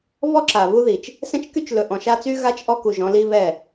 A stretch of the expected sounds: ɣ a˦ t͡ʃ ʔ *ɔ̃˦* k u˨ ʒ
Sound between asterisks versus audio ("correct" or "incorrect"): incorrect